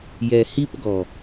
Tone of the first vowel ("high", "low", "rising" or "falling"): low